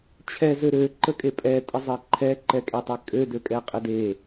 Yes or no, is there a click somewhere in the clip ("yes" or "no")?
yes